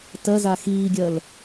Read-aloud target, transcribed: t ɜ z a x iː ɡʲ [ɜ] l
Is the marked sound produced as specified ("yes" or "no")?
yes